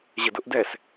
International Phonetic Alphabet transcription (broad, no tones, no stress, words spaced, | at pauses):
ʑədʊʔdɛs